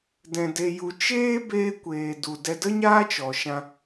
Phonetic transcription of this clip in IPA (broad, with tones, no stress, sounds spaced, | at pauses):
d ɛ̃˧ d e˧ j u˧ t͡ʃ eː˦ b eː˦ kʷ eː˧ d u˨ d ɛ˦ d ə˦ ɲ aː˦ t͡ʃ ɔ˨ ʃ ã˧